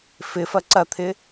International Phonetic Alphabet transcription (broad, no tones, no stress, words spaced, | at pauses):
fɪfɐ ǀɐt̪ʰɪ